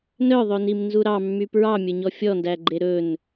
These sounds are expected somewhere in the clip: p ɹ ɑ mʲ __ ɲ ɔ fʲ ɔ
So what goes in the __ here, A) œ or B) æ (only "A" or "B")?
A